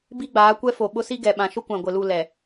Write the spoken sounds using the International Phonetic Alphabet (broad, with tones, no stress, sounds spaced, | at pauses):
b i˦ ɡ͡b aː˨˦ kʷ ɛ˦ f o˨ ɓ ʊ˦ s i˦ ɡ ɛ˨ ɓ ã˨ ʃ ʊ˦ kʷ ã˨ ɡʷ ɪ˨ l u˦˨ l ɛ˨